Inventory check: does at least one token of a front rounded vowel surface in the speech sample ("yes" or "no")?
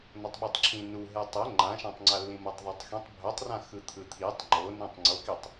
no